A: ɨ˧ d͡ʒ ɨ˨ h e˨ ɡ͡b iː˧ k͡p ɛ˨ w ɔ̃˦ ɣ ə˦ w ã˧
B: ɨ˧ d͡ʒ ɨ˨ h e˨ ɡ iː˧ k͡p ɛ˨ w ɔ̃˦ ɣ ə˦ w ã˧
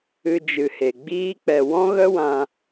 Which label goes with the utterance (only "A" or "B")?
A